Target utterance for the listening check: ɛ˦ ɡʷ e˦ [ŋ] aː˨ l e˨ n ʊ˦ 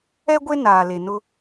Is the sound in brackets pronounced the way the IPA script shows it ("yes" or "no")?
no